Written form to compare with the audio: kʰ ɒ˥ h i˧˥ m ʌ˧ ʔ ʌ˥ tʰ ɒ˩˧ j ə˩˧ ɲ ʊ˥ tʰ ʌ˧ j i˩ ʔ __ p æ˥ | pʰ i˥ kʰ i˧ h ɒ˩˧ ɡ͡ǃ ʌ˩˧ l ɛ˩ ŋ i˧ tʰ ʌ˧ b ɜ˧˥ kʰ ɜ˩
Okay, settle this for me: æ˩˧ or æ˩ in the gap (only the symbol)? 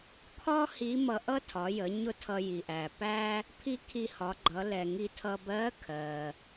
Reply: æ˩